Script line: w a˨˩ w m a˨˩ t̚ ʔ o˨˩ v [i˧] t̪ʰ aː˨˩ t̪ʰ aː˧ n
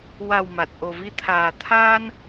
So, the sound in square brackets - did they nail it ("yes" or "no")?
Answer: yes